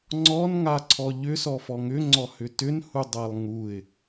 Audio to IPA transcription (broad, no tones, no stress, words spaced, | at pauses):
ŋ͡ǀɔnŋaǀʰɔ ʎʏsɔfɔ ŋʏŋ͡ǀɔhʏ tʏnhudˤalˠ ŋuɪ̯